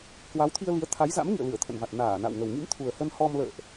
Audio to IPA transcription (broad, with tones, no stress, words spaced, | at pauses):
kwa˨˦wt̪ʰi˧ə̯li˨˦ə̯ t̪ʰa˨˦jza̰˧˥mŋḭ˧˨ə̯ lɨ˧˩ə̯t̪ʰə̰˧˨nva˨˩t̚ naː˧˩ na̰˧˨wŋə˨˩w ŋḭ˧˥mt̪ʰu˨˩ə̯ hə˧nhɔ˧mlə̰ː˧˨ʔ